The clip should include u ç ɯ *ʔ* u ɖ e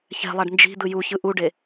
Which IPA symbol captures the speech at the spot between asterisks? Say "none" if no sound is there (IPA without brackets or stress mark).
ʔ